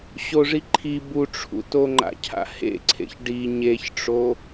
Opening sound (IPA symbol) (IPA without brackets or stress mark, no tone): ɕ